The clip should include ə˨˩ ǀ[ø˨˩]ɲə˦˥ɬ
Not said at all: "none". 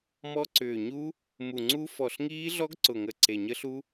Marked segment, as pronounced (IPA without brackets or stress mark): e˨˩